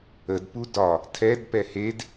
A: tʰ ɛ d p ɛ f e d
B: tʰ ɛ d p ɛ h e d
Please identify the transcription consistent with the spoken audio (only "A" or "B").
B